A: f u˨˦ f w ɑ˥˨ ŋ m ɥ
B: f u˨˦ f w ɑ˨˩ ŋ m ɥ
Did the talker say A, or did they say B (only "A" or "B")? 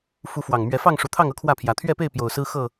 B